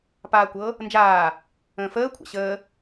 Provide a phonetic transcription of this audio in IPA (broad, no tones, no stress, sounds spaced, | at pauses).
p aː kʷ ɤ | n d͡ʒ aː | ə̃ː f əː kʷʰ a̰ ɕ əː